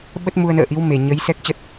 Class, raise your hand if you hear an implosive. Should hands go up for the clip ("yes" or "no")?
yes